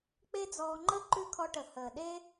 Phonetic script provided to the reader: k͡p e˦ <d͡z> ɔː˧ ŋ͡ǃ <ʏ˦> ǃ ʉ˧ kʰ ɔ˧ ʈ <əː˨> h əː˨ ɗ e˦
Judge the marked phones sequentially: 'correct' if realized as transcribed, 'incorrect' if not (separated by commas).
correct, incorrect, incorrect